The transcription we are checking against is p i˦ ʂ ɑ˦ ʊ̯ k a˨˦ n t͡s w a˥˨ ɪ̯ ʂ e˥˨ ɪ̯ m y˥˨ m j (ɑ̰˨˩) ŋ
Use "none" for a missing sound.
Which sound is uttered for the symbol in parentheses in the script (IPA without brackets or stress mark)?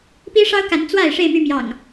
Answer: ɑ̰˨˩